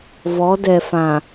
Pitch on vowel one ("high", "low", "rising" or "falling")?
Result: rising